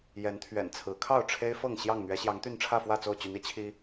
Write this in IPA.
j ɛ˨˦ n t̪ʰ ɥ ɛ̰˨˩ n t͡sʰ ɹ̩˨˦ kʰ ɑ˥˨ ʊ̯ ʈ͡ʂʰ e˦ ɪ̯ f ɤ˥˨ ŋ ɕ j ɑ˥˨ ŋ n̪ ɥ ɛ˨˦ ɕ j ɑ˨˦ ŋ t̪ y˥˨ n ʈ͡ʂʰ ä˥˨ f w ä˥˨ t͡s o˥˨ ʊ̯ t͡ɕ y˨˦ n i˨˦ t͡ɕʰ i˦

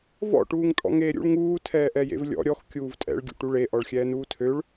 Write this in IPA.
v ɔ̰ ʈ uː ŋ tʼ ɔ̰ ŋ eː ɾʲ ṵ ɭ ŋ uː tʰ ɛː ʔ ɛ j ḛ v lʲ ɔ̰ ɾʲ ɔ x kʲ uː v tʼ ɛ̰ ɭ ɡʲ ṵ ʈ u ɭ e ʔ ɔ ɭ xʲ ɛː n uː tʰ ø ɭ

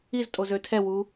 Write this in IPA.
i z tʼ o z ø tʰ ɛ w u

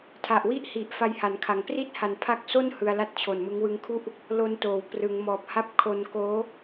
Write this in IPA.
tʰ a˨˩ ʔ w i˥˩ ʔ h i˨˩ ʔ f a˧ j h a˩˦ n kʰ a˩˦ ŋ p r i˥˩ t̚ h a˨˩ n pʰ a˦˥ k̚ s o˥˩ n h ɯ˧ a̯ l a˥˩ t̚ t͡ɕʰ o˨˩ n m ɯ˦˥ ŋ w ɯ˧ ŋ kʰ u˥˩ ʔ | l o˧ n t oː˩˦ w p r ɯ˩˦ ŋ m ɔː˨˩ p̚ h a˦˥ p̚ kʰ o˧ n k oː˦˥

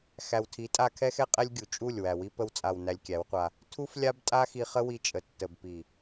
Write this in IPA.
x æ˨ w tʰ i˨˦ tʼ a˧ kʰ ɛ˦ x ɛ˦ qʼ ɛ˦ lʲ ɡʲ u˨ t͡ʃʼ u˦˨ lʲ w æ˨ w i˦ p ə˧ w t͡sʼ a˨ w n æ˧ lʲ kʲ æ˨˦ w qʷ a˧ | tʰ u˦ f lʲ a˦ b tʼ a˦ x i˧ χ ə˦ w i˧ t͡ʃʼ ə˨ tː ə˨ b p i˨

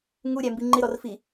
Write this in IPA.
ŋ u ɾʲ æ m b i ŋ͡ǃ ɪ ɾ ɔ r f i

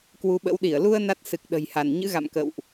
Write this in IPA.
k w u˨˦ ɓ ə̰˧˥ w ɗ i˧˩ ə̯ l u˧ ə̯ n a˦˥ t̚ s ɨ˨˩ k̚ ɗ ə̤˨˩ j h a˧˩ n ɲ ɨ̰˧˥ ɣ a̰˧˨ m k ə̰˧˨ w ʔ

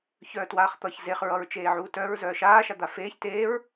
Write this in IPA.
ç œː t w aː χ t̪ ʌ ç z e χ ɹ ʌ ɹ t͡ʃ eː ʕ uː t œ ɹ z œː ʃ aː ʃ a d̪ a f eː ç t eː ɹ

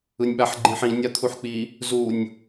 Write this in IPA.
ɯ nʲ ɓ a ħ ɡ͡ǃ ĩ ħ ĩ nʲ a t̪ʰ u ħ k͡p i | z u nʲ

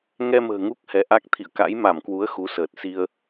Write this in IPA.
ŋ ɛ˧ m ə̤ː˨˩ ŋ u˦˥ k̚ h ɛ˨˦ ʔ a˦˥ k̚ t̪ʰ ḭ˧˨ ə̯ k a̰˧˥ j m a˧˩ m k w u˨˦ ə̯ x u˨˦ s əː˨˩ t̚ s i˧ ə̯

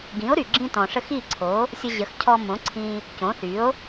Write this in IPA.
ɡ ĩ˩˥ o̯ ɾ y˩ ɡ͡ǁ ĩ˧ t ɔ̃˩ ʂ ə˧ x i˥˩ ǀʰ o˩˥ | sʲ ə˧ ʑ ə˩˥ x cʰ ɔ˧ m õ˩˥ ǀʰ ĩ˧ | c õ˩˥ θ y˩˥ o̯

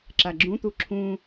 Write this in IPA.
ǁ a ɡ͡ǁ ũ t̪ u ǁʰ ũ

